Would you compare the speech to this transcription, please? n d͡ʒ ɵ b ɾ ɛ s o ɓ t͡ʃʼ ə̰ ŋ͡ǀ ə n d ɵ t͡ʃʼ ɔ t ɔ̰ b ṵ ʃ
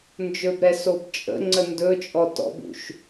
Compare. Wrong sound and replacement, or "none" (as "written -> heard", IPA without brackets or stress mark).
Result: ɓ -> b